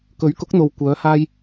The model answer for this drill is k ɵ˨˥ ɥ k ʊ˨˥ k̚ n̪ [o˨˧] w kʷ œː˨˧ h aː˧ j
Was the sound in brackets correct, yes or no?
no